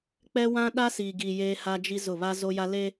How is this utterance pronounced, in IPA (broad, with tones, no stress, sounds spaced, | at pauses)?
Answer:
k͡p ɛ˦ w ã˦ ɗ a˦ s iː˨ ɡ i˨ j eː˦ h a˦ d͡ʒ i˦ z ʊ˦˨ β a˦ z o˦ j a˦ l e˦